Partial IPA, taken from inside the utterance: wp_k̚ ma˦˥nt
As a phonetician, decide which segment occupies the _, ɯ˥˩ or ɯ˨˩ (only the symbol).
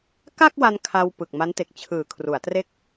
ɯ˨˩